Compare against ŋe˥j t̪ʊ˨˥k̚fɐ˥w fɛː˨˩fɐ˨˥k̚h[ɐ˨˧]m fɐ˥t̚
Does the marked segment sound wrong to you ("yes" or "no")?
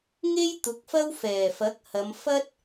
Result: no